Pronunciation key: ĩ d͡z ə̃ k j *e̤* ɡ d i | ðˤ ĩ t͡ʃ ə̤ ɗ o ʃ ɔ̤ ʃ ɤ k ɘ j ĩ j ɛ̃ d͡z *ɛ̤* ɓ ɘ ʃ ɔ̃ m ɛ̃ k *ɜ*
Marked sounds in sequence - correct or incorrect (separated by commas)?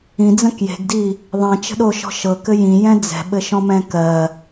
correct, correct, correct